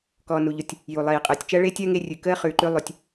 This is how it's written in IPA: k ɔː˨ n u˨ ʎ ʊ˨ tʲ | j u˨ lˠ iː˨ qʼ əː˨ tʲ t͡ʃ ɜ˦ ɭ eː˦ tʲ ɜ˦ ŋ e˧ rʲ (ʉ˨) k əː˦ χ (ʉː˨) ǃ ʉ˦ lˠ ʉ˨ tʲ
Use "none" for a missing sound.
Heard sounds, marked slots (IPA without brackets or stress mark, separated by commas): ʉ˨, ʉː˨